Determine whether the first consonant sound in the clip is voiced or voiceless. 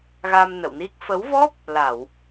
voiced